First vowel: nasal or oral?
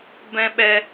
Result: nasal